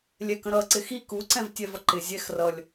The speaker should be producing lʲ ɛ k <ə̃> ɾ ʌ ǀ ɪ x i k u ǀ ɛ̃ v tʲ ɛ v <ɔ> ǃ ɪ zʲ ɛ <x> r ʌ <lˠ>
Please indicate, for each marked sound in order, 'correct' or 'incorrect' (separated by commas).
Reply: correct, incorrect, correct, incorrect